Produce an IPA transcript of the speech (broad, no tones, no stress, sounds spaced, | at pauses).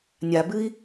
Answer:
nʲ a b ɨ i̯